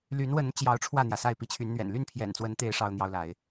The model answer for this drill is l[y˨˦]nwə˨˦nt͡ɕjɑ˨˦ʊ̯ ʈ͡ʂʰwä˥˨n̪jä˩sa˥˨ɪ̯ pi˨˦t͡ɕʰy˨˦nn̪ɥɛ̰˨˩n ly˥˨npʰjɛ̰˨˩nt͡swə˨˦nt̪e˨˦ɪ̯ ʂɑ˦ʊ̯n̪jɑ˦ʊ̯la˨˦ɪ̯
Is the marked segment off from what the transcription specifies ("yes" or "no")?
no